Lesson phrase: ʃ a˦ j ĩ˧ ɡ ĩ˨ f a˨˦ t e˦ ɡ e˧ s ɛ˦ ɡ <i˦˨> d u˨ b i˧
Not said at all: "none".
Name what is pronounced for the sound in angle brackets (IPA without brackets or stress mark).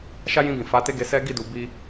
i˦˨